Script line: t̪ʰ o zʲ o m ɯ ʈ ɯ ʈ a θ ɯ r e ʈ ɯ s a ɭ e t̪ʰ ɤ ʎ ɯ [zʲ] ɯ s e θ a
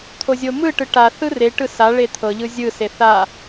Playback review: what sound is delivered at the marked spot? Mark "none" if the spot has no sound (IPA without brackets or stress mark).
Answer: zʲ